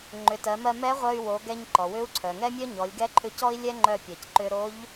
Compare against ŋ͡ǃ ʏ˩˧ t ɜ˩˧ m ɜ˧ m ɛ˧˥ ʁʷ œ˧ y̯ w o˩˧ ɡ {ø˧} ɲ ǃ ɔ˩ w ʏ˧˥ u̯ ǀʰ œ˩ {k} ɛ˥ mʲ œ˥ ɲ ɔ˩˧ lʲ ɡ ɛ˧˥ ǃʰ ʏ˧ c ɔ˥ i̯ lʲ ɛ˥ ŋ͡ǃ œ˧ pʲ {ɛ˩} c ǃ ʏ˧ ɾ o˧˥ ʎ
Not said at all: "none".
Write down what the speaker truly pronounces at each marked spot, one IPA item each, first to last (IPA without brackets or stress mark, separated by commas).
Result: ɛ˧, ŋ, ɜ˩